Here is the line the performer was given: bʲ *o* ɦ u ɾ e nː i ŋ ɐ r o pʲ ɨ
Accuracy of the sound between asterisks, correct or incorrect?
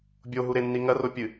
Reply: correct